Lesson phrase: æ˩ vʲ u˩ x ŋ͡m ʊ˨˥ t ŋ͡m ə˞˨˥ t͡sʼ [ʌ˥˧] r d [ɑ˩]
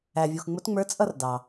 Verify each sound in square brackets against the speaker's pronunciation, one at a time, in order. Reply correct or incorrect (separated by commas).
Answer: correct, correct